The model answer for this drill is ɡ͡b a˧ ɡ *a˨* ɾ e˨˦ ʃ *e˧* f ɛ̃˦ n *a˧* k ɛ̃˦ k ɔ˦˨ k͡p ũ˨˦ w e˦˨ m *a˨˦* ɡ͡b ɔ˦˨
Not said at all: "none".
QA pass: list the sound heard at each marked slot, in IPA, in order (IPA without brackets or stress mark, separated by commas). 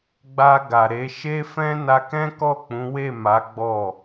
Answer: a˨, e˦, a˧, a˨˦